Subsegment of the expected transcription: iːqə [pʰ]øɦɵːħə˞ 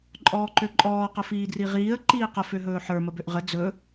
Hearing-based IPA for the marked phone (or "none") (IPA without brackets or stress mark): f